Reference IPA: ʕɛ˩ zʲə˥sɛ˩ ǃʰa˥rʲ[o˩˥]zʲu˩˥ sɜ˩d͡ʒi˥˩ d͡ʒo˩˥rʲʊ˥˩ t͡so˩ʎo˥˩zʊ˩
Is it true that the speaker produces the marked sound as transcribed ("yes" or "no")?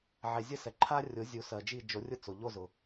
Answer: yes